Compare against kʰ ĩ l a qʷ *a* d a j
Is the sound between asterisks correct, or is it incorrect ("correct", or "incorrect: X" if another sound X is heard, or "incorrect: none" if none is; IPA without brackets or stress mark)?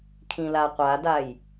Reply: correct